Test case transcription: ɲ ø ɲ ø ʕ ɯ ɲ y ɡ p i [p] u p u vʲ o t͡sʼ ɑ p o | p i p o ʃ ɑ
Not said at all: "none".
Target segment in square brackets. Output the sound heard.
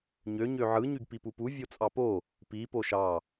p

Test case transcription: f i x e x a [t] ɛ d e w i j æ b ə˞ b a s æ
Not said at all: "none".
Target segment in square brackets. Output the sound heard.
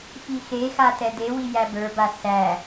t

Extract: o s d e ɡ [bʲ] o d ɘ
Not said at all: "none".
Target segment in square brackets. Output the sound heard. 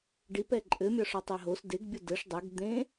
bʲ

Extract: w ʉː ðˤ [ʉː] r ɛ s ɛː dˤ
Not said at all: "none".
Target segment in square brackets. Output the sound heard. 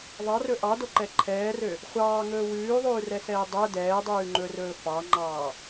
ʉː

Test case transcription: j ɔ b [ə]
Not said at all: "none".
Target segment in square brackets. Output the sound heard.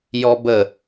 ə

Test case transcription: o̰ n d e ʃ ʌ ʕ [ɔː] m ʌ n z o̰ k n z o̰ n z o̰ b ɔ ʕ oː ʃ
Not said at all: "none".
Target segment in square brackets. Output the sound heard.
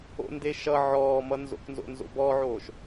ɔː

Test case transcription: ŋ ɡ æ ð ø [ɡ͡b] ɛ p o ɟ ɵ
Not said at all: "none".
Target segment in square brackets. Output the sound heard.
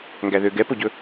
ɡ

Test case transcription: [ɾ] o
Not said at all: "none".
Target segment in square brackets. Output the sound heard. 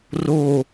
r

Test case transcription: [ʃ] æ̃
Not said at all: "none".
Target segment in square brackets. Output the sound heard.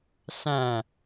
s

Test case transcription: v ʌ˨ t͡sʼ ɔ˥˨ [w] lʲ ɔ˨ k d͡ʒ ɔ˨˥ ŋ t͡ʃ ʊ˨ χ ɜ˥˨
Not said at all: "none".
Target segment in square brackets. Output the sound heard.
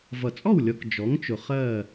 w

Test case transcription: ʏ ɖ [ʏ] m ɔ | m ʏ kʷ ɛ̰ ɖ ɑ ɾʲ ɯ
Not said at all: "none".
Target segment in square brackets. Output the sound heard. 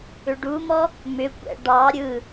u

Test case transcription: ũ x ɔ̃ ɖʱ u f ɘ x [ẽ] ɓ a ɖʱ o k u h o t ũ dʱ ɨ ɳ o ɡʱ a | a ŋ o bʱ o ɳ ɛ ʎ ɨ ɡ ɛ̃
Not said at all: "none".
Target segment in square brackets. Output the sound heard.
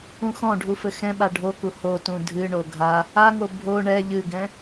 ɛ̃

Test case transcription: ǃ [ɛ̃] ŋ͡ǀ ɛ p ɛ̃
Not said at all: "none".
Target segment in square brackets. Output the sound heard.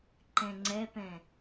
ɛ̃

